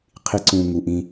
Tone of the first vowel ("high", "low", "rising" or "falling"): high